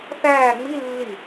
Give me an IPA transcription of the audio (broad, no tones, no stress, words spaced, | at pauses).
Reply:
θæː ŋ͡mi lːi